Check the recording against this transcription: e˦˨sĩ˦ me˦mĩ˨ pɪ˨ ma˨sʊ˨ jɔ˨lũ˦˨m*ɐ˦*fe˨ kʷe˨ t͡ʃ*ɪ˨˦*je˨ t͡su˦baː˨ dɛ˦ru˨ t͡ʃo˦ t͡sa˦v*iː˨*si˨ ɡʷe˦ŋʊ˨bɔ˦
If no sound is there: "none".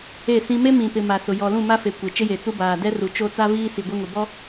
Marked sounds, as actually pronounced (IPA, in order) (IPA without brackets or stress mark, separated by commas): a˦, ɪ˦, iː˦